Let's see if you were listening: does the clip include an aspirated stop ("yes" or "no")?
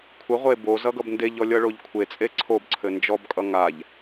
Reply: yes